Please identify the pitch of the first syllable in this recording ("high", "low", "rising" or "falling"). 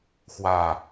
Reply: low